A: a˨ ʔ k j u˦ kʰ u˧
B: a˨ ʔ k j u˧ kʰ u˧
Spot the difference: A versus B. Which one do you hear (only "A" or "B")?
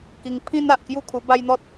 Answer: A